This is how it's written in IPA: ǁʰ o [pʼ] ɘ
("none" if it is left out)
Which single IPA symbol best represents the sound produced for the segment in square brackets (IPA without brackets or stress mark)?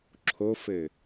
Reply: f